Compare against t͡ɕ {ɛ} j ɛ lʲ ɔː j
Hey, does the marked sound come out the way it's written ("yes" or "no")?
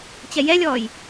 yes